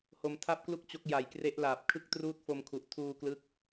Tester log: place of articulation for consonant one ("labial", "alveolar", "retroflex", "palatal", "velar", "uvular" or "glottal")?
glottal